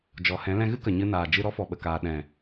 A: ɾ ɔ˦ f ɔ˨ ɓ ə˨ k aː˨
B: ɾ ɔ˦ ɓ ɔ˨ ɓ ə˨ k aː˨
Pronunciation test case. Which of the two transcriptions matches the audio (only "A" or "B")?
A